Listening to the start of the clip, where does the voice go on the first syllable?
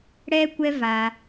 high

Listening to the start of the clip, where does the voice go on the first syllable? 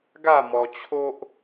falling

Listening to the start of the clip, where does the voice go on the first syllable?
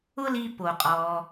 high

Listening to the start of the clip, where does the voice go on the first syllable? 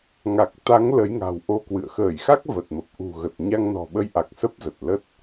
low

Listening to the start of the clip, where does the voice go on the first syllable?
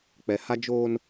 low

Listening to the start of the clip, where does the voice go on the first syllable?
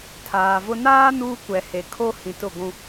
low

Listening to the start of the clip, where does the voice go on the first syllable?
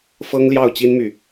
high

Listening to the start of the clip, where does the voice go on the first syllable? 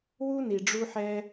high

